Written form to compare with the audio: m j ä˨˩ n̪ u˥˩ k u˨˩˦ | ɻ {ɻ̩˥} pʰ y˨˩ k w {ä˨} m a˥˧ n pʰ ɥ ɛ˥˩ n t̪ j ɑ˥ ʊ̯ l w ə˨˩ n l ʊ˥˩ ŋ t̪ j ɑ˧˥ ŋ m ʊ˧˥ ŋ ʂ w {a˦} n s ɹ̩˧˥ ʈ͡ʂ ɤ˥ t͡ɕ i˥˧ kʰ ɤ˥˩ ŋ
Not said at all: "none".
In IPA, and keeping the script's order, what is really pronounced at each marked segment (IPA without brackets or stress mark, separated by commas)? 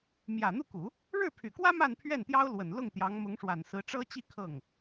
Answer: ɻ̩˥˩, ä˥, a˨˩